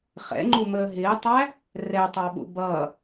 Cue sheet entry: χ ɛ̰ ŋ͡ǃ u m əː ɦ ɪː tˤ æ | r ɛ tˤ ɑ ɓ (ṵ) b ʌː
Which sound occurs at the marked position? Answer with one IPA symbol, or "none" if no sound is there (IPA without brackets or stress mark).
ṵ